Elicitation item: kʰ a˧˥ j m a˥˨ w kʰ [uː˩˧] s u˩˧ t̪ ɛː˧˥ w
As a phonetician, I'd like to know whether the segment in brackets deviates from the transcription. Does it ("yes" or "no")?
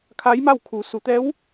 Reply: no